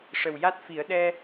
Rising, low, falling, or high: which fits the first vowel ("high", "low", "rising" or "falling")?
low